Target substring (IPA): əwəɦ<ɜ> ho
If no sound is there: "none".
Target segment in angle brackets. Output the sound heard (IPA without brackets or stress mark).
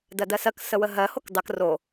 ɜ